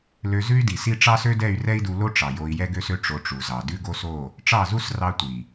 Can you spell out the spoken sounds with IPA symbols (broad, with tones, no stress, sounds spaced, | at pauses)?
l ø˧ z ʉ˦ y̯ d i˨ s i˦ ʈ͡ʂ ɑ˦ s ø˦ d ɛ˦˨ y̯ r ɛ˦ i̯ d u˧ l o˦ ʈ͡ʂ ɑ˨ j o˧ i̯ j ɛ˦ ɡ ø˦ s ø˦ ʈ͡ʂ o˧ ʈ͡ʂ u˨ z ɑ˨ d ʉ˦ ɡ o˦ s o˦˨ | ʈ͡ʂ ɑ˦˨ z u˦ s r ɑ˦ tʷ i˨